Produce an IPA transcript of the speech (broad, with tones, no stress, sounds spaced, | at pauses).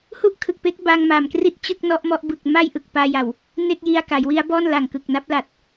h u˥˩ ʔ kʰ ɯ˨˩ k̚ p e˦˥ k̚ b a˧ ŋ m a˨˩ m k r i˥˩ t̚ t͡ɕ ɯ˥˩ k̚ n ɔ˦˥ ʔ m ɔ˦˥ ʔ b ɯ˨˩ k̚ m a˥˩ j ʔ ɯ˨˩ k̚ p aː˧ j a˨˩ w | n e˥˩ k̚ j i˧ a̯ k a˩˦ j w i˦˥ a̯ b ɔː˥˩ n l a˨˩ ŋ k ɯ˨˩ k̚ n a˦˥ p̚ l a˨˩ t̚